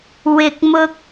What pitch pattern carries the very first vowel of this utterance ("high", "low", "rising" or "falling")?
high